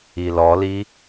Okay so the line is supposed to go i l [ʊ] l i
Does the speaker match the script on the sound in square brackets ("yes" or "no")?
no